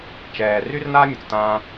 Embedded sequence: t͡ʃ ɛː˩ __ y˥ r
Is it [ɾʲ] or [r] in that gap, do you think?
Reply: r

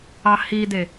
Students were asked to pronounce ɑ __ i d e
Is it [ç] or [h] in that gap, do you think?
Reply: h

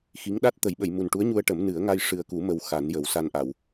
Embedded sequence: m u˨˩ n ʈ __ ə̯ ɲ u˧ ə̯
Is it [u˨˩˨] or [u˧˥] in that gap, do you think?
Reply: u˧˥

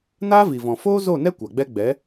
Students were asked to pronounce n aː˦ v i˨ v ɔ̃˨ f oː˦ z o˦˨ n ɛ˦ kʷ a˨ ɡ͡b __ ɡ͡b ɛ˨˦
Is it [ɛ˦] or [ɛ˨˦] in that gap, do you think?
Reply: ɛ˦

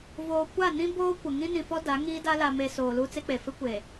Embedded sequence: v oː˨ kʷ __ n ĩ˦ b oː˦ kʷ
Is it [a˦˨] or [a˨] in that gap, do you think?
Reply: a˦˨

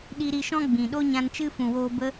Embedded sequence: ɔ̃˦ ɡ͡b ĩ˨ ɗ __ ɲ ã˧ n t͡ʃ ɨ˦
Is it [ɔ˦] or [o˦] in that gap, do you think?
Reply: o˦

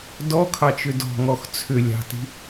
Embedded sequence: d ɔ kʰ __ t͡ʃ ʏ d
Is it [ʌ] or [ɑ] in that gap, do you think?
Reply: ɑ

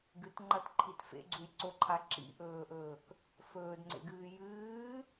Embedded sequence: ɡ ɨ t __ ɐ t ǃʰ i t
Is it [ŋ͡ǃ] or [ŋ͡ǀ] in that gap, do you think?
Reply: ŋ͡ǃ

